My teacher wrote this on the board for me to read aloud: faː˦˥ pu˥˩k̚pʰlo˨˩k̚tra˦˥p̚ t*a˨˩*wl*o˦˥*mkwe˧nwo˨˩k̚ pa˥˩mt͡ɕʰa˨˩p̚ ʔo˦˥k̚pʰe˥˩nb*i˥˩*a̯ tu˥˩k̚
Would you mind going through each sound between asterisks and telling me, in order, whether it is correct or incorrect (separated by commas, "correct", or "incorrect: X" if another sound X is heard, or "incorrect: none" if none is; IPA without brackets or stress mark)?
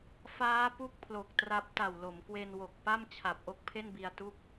correct, incorrect: o˩˦, incorrect: i˧